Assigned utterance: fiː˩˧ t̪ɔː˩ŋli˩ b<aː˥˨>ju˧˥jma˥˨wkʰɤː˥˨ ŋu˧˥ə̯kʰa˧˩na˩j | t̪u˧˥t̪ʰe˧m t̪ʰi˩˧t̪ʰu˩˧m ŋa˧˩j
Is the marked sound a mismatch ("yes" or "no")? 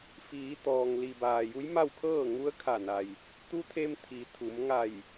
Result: yes